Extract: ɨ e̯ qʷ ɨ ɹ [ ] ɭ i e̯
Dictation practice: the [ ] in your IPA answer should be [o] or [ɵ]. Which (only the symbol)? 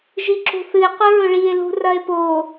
ɵ